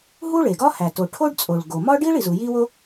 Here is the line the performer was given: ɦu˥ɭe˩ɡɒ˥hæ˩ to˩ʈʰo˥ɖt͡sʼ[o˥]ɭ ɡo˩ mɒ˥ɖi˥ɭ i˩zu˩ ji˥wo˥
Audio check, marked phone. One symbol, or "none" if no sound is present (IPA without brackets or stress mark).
o˩